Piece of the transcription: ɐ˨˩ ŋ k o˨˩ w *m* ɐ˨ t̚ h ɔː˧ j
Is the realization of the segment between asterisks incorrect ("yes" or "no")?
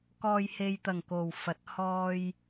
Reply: yes